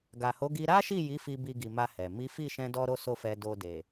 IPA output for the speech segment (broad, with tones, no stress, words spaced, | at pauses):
ɡa˨ho˨˦ɡi˧ ɾa˦ʃi˦˨ji˨˦ fi˧ bi˧ɡi˨ma˧ hɛ˨ mi˨˦fi˦˨ʃɛ̃˧ dɔ˦ɾo˦so˦˨fɛ˧ do˧de˨